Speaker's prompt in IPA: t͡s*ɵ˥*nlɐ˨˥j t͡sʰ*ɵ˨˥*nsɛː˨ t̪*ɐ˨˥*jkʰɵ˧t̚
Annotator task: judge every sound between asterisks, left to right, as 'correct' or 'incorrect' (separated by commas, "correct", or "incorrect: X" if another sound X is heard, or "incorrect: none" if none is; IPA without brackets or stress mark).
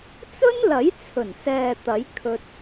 correct, incorrect: ɵ˨˩, correct